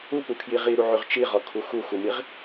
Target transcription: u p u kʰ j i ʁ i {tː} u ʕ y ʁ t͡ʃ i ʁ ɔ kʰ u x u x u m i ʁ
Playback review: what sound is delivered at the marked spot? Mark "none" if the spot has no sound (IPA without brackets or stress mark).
ɾ